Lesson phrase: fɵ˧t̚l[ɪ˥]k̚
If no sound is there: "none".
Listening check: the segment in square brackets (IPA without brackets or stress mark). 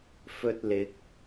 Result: ɪ˨˥